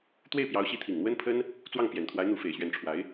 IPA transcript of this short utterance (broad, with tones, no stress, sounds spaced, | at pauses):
t̪ w e˥˩ ɪ̯ p j ɑ˧˥ ʊ̯ ɕ i˧˥ t̪ʰ i˨˩ ŋ n̪ w ə˥ n pʰ ə˥ n | t͡s w ɑ˥˩ ŋ p j ɛ˨˩ n t̪ʰ w a˧˥ ɪ̯ n̪ u˧˥ f e˨˩ ɪ̯ ɕ ɥ ɛ˧˥ n ʈ͡ʂʰ w a˧˥ ɪ̯